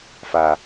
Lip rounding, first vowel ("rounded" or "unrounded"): unrounded